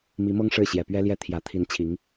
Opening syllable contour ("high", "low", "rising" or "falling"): rising